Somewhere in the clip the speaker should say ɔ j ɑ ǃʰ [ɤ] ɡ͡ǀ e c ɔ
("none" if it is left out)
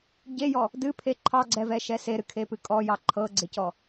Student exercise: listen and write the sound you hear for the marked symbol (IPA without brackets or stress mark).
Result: ɤ